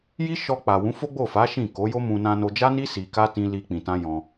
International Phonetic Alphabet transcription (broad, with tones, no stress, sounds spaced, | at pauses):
j i˦ ʃ ɔ˧ k͡p a˨ w ũ˨˦ f o˦ ɡ͡b o˦˨ f a˨˦ ʃ ĩ˦˨ k o˨˦ j o˦ m ũ˧ n ã˧ n o˧ d͡ʒ a˦ n i˦ s i˧ k a˦ t ĩ˦ l i˦ k͡p ĩ˧ t ã˦ j ɔ̃˧